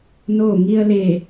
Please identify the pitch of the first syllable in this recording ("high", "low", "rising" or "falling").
falling